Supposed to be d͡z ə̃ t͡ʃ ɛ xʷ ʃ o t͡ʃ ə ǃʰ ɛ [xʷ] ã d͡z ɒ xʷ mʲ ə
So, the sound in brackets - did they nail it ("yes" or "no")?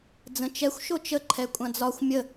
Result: no